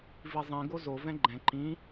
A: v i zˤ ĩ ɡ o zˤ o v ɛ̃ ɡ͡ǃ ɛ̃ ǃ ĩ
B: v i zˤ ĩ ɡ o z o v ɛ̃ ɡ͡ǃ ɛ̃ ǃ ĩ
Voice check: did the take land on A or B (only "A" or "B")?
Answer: B